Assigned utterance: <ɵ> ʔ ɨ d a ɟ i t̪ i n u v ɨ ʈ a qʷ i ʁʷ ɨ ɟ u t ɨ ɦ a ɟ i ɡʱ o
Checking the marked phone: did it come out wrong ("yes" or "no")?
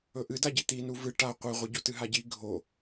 no